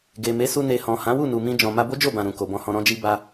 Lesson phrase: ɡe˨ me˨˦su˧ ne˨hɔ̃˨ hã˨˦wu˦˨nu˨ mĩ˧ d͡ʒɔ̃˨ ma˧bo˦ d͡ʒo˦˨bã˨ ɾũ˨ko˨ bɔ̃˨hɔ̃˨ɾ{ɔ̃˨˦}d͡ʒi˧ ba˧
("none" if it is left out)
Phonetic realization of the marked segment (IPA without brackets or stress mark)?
ɔ̃˧